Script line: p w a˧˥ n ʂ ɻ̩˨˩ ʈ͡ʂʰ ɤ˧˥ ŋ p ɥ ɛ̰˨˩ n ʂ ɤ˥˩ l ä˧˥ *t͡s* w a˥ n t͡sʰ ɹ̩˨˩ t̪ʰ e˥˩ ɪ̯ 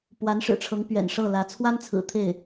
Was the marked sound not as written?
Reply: yes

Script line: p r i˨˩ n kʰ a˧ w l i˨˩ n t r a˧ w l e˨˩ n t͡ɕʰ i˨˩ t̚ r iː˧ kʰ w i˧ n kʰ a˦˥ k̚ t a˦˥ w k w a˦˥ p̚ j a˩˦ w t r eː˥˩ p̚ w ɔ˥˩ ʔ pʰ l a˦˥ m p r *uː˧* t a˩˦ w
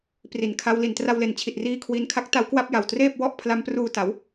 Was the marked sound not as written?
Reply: no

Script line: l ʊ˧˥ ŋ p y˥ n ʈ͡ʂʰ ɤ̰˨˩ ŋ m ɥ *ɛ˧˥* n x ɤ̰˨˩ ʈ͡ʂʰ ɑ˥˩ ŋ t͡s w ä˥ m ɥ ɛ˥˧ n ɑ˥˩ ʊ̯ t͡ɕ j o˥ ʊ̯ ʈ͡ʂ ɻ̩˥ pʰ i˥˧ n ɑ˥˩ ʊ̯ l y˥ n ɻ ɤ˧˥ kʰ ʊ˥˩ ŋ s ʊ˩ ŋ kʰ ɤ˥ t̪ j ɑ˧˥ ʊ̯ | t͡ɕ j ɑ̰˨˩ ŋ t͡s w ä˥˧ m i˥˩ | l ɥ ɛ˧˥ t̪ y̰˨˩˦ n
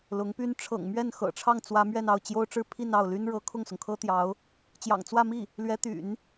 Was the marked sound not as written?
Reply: yes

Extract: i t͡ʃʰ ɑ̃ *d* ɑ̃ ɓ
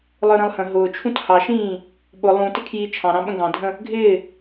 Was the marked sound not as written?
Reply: yes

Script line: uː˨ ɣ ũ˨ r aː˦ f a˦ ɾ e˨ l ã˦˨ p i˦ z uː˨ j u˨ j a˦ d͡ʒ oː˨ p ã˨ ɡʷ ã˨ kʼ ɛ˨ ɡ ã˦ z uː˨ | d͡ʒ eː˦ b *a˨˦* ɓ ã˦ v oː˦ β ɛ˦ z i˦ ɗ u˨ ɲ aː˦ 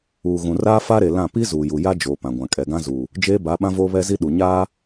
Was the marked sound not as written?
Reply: no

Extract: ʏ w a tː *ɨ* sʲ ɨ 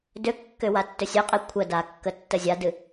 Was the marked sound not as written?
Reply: yes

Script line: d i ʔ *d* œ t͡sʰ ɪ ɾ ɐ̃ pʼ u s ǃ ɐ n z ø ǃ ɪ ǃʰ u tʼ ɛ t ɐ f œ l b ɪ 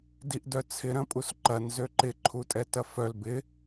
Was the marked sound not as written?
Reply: no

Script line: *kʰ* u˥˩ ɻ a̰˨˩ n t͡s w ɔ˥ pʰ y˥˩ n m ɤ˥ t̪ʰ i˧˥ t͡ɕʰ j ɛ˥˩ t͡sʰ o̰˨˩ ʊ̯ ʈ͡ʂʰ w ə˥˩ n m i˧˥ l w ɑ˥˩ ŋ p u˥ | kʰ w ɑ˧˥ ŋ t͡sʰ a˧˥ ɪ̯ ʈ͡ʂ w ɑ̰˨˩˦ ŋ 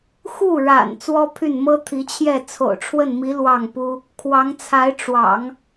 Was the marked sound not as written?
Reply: yes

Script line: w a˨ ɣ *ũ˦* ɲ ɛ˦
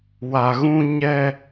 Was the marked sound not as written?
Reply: no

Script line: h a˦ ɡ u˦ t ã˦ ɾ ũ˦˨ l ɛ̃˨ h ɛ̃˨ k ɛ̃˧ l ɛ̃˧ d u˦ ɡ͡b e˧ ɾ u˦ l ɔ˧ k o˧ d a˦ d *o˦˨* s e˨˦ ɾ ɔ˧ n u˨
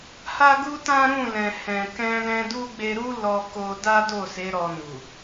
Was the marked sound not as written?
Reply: no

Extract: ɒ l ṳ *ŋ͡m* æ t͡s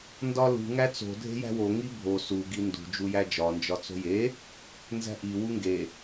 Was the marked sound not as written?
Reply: yes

